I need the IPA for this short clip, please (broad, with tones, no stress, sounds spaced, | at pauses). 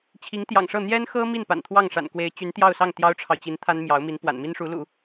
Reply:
t͡ɕʰ i˧˥ ŋ t̪ j ɑ̰˨˩ ŋ ʂ ɤ˥˩ n̪ j ɛ˥ n x ɤ˥ m i˥˩ n p a̰˨˩ n t̪ʰ w ɑ˥˩ ŋ ʂ a̰˨˩ n k w e˧˥ ɪ̯ t͡ɕ y˧˥ n t̪ j ɑ˥˧ ʊ̯ s ɑ˥˩ ŋ t̪ j ɑ˥ ʊ̯ ʈ͡ʂʰ ɑ˨ ʊ̯ t͡ɕ i˧˥ n t̪ʰ a˥ n m j ɑ˧˥ ʊ̯ m i˧˥ n p w a̰˨˩ n m i˥ n ʂ u˧˥ l ṵ˨˩˦